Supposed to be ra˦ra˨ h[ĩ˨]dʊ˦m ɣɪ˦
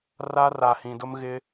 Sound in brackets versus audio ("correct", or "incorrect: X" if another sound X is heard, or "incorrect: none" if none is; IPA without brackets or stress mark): correct